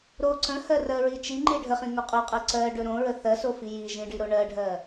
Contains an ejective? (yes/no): yes